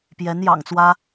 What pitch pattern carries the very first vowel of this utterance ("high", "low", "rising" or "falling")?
rising